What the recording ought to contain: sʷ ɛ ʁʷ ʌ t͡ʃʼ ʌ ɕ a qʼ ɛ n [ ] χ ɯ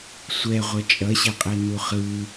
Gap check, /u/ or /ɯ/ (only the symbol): u